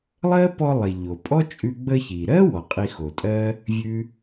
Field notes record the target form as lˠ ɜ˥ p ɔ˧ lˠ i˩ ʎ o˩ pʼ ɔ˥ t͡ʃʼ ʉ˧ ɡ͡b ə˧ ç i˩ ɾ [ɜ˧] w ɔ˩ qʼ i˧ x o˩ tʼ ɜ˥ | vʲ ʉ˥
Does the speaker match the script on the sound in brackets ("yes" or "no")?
no